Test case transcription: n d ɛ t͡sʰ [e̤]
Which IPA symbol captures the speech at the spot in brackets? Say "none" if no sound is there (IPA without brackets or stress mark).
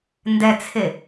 e